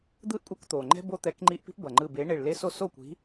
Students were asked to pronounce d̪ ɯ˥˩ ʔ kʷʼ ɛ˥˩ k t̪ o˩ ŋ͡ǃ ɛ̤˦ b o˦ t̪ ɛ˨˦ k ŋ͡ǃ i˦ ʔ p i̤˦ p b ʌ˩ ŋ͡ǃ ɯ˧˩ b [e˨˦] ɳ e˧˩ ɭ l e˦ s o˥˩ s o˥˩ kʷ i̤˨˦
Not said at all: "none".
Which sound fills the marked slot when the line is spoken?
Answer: e˨˦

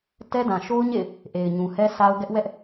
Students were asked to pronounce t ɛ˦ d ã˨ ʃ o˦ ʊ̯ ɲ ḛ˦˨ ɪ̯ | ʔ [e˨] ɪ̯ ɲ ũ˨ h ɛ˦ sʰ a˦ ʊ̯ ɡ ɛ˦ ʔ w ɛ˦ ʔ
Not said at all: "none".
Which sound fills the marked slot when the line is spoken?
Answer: e˨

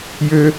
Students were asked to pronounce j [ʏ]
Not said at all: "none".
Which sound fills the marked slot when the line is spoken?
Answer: ʏ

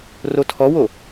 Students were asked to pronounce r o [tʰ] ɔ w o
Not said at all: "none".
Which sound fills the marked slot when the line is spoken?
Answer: tʰ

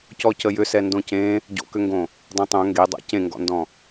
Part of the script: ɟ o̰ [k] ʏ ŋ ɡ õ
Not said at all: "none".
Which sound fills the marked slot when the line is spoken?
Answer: k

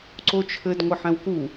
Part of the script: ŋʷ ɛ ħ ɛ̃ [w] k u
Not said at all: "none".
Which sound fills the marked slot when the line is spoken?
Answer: w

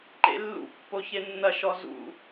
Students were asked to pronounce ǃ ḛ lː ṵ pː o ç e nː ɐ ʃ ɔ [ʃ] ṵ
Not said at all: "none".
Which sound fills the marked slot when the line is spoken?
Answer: z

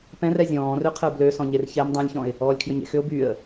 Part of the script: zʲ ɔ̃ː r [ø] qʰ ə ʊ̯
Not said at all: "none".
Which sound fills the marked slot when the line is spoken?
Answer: ø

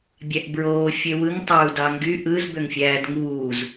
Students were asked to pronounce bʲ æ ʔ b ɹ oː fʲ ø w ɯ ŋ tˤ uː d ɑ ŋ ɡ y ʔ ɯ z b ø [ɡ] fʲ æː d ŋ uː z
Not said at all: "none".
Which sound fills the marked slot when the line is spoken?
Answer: ŋ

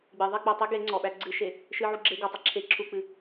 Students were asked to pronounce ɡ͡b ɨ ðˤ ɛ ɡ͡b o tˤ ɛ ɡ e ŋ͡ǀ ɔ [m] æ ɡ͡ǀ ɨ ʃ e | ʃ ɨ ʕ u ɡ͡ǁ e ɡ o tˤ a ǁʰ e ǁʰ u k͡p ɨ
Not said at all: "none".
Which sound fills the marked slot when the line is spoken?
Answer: ɓ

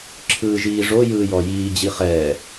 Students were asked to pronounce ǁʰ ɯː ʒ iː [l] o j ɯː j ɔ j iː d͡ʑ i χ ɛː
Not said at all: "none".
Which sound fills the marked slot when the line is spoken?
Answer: ʐ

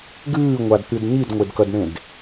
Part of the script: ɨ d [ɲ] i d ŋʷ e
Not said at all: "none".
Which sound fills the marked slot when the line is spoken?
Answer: ɲ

